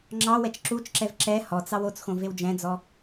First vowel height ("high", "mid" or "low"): low